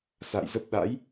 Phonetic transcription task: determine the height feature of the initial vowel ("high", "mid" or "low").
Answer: low